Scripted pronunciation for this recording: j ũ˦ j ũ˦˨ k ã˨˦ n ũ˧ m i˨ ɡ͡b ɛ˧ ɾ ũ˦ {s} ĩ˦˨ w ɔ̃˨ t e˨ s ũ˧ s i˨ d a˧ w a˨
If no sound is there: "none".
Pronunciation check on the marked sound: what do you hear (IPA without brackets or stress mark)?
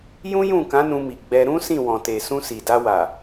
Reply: s